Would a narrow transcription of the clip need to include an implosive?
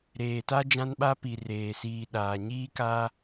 yes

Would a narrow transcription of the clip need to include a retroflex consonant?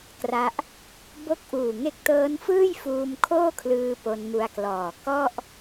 no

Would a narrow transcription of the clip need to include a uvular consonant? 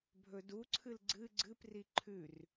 no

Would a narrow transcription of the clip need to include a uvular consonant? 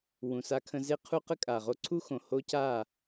yes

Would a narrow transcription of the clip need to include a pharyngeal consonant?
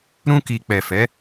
no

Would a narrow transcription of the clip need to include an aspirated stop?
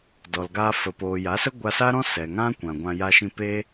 no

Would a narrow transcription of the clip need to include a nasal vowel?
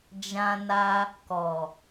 yes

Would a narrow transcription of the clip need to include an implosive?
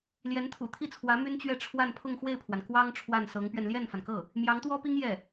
no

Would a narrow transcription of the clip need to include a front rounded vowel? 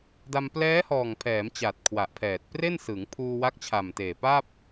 no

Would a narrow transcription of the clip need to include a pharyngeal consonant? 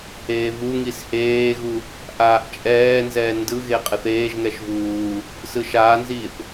no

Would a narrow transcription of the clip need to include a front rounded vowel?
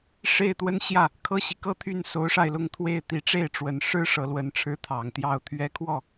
yes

